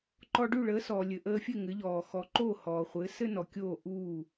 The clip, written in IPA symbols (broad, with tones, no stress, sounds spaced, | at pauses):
ǃ ɔ˧ ɖ ʉ˥˩ ɭ əː˩˥ s ɔː˩ lʲ ɘ˩ ʔ əː˧ fʲ ɘ˥˩ ŋ ɘ˩˥ ʎ ɔː˩ x ɔ˩˥ ǃ oː˥˩ h ɔː˩ χʷ ɘː˩˥ s ɘ˥ n ɔ˩ kʲ oː˥˩ ʔ uː˥˩